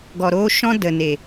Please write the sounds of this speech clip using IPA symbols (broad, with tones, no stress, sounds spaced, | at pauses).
ɡ ɔ˨ ɾ oː˧ ʃ ɔ̃˦ d ə˨ n e˨